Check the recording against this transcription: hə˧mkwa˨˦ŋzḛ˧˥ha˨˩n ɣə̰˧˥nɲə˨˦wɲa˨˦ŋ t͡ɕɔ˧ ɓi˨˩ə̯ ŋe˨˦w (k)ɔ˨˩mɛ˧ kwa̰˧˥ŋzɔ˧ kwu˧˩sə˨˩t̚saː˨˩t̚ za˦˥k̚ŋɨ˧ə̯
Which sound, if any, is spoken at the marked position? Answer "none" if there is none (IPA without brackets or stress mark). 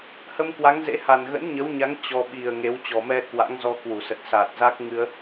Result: t͡ɕ